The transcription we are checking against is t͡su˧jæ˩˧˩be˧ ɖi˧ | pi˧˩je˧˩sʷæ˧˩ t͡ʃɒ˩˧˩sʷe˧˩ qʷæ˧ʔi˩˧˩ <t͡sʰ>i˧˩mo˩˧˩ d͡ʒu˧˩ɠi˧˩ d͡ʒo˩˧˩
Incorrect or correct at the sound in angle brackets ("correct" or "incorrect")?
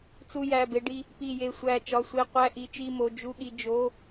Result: incorrect